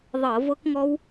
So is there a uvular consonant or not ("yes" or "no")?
no